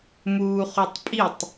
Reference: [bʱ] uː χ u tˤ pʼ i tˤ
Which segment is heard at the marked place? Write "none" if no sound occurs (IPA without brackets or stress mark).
m